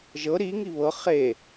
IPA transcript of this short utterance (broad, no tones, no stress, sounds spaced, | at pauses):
ʒ ɤ ɾ i ŋ i β ɤ χ e